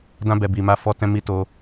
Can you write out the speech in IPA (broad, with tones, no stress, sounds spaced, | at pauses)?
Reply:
d ã˧ b ɛ˨ b i˨ m a˧ f ɔ˧ t ɛ̃˧ m i˧ t o˧